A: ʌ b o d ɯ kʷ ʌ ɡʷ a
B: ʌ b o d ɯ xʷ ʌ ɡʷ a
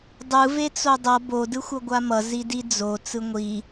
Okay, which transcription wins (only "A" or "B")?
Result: B